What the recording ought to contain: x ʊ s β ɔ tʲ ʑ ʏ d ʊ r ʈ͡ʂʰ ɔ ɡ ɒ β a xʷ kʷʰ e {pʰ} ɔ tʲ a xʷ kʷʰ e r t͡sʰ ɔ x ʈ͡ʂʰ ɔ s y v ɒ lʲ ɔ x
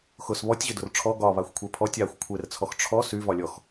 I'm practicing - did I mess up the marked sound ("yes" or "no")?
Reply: no